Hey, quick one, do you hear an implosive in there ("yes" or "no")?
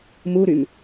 no